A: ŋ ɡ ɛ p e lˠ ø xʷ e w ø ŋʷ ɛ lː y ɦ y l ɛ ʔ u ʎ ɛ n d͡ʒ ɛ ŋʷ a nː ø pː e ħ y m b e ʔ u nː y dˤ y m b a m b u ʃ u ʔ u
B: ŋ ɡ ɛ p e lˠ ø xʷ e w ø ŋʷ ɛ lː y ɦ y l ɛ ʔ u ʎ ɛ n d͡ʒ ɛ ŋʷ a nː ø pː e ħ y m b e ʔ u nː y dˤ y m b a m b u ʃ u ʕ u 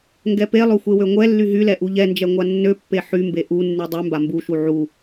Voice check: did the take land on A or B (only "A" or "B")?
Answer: B